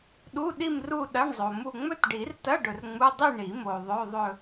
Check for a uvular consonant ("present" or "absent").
absent